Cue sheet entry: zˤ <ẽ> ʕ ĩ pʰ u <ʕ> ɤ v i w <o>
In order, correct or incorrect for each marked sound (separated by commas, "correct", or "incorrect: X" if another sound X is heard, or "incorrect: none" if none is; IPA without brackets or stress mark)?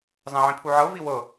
incorrect: ɛ̃, correct, incorrect: ɤ